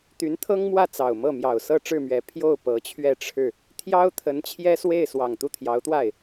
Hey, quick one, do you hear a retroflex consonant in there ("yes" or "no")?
yes